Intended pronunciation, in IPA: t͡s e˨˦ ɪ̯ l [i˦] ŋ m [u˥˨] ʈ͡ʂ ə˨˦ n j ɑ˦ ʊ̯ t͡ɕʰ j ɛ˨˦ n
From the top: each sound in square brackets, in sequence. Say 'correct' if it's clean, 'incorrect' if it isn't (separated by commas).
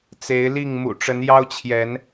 incorrect, incorrect